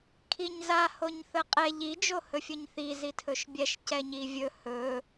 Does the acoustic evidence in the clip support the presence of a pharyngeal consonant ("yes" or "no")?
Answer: no